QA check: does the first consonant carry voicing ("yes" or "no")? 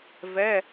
yes